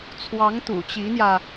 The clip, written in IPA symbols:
t͡sʰ w ɑ˧˥ ŋ t̪ ṵ˨˩ t͡ɕ i˧˥ n̪ j ä˧

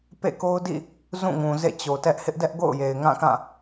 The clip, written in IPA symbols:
p ḛ˦˨ k o˦ ʊ̯ d ḭ˦˨ | z ũ˦˨ ŋ ũ˨ z ḛ˦˨ t͡ɕ o˨ t ɛ˦ ʔ h ɪ˦ ʔ d ɛ˦ ʔ ɡ o̰˦˨ ʊ̯ j e˨ ɪ̯ ŋ ã˦˨ k ã˦˨

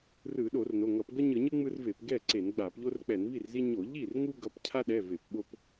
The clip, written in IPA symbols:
r ɯ˧˩˧ ɗ o˧˩˧ r n o˩˧˩ ŋ ʌ˧˩˧ p ɡ ʌ˦ ɲ ɯ˧˩˧ ɲ ɯ˦ ŋ͡m ɯ˦ r v e˧˩˧ p ɡ ɛ˥˩ ǀ e˧˩˧ n ɡ͡b a˧˩˧ p ʎ o˦ r k͡p ɛ˧˩˧ n v i˥˩ r z i˦ ɲ o˧˩˧ ʎ i˥˩ r ŋ u˦ ɡ ʌ˩˧˩ p cʰ a˦ ɗ ɛ˩˧˩ v e˧˩˧ p ɓ o˦ p

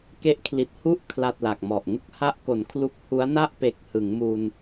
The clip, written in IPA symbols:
k e˦˥ ʔ kʰ l i˨˩ t̚ h u˥˩ ʔ kʰ l a˨˩ t̚ l a˨˩ k̚ m ɔ˨˩ ʔ ŋ u˦˥ k̚ h a˦˥ ʔ k o˩˦ n kʰ l u˦˥ k̚ h u˦˥ a̯ n a˥˩ ʔ p e˨˩ k̚ h ɯ˩˦ ŋ m u˧ n

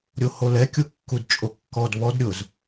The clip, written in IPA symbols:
ɾʲ o h o l ɛ kʲ u kː u d t͡ʃʼ o kː ɔ d β ɔ d ɾʲ ʊ z

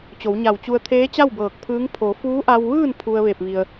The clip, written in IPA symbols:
t͡ɕ o˩˧ w ɲ a˧˩ w t͡ɕ u˧ ə̯ t̪ʰ eː˧˥ t͡ɕ a˥˨ w b ɤː˧˩ k̚ pʰ ɯː˧˥ ŋ pʰ o˩˧ f uː˧˥ ʔ a˧ w ʋ ɯː˥˨ n pʰ u˧ ə̯ ʋ e˧˩ p̚ ʋ i˩ ə̯

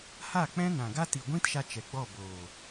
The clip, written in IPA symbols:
h a˦˨ k͡p ɛ̃˦ n ã˨ ɡ a˦ t i˨ ɡʷ ĩ˦ t ʃ a˧ t͡ʃ ɛ˨ ɡ͡b ɔ˦˨ b oː˨

